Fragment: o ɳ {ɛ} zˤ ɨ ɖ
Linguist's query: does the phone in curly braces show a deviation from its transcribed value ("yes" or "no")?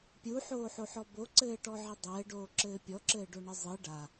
yes